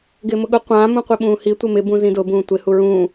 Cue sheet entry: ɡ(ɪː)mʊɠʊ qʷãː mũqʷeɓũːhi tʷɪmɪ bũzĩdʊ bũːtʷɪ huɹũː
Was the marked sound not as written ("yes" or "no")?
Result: no